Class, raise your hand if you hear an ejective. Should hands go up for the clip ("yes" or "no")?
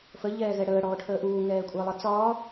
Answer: yes